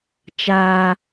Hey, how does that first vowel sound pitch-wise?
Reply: high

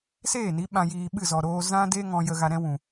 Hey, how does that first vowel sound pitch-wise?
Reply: falling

